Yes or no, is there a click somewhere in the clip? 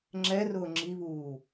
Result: yes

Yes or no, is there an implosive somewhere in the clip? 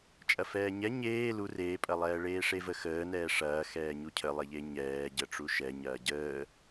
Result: no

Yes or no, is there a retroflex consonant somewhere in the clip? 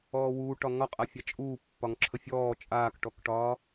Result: yes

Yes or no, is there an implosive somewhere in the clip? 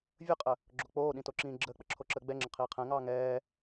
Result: yes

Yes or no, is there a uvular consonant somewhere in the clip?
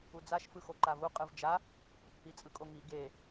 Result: yes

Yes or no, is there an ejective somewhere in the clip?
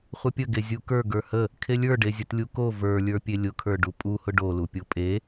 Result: yes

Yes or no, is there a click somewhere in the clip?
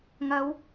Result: no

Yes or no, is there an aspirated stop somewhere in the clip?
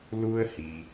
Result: no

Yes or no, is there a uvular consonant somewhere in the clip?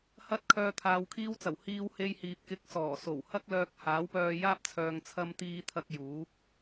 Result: no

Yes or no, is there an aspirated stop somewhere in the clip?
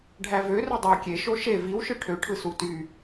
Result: yes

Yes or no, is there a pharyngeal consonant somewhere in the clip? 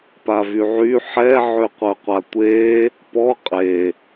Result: yes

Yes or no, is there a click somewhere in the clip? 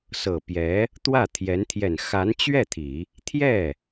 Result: no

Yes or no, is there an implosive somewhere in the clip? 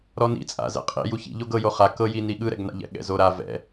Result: yes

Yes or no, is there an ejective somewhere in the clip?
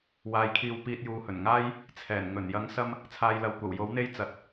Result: no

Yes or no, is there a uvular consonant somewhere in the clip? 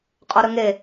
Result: yes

